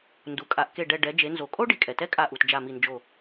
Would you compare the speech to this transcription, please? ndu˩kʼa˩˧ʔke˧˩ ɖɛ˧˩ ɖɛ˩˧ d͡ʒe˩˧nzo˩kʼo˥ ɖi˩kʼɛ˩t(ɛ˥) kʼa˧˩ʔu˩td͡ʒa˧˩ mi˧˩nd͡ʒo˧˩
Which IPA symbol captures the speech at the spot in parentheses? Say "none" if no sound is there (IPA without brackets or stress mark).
ɛ˥